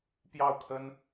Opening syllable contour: falling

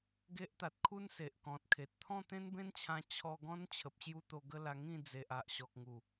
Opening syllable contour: high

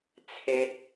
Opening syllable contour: high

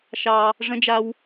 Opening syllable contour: low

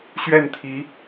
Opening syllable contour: falling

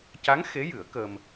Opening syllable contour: rising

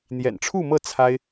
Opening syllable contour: low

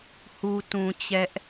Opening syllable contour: low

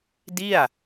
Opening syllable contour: falling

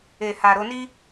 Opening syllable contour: low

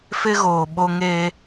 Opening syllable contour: high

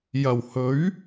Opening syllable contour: low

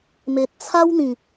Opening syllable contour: low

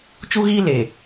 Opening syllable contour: high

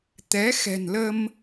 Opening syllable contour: rising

